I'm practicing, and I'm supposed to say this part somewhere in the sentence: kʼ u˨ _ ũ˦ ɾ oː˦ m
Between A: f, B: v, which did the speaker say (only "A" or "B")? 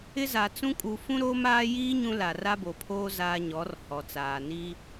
A